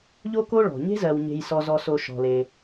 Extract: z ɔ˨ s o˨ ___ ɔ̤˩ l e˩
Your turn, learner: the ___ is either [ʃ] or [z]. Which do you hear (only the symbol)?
ʃ